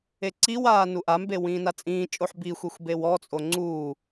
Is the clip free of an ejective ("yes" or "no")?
no